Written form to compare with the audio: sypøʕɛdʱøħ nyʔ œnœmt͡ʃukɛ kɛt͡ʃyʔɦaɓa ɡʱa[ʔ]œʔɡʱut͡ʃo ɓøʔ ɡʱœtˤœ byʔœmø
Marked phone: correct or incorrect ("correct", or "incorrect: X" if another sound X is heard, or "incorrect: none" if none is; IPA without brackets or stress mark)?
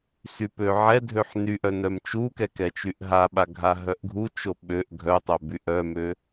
incorrect: ɦ